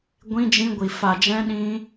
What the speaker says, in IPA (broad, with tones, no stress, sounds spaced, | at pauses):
ɡʷ ĩ˦ d͡ʒ ĩ˦ ɡʷ i˧ f a˧ d͡ʒ ɛ̃˦ ɗ ĩ˦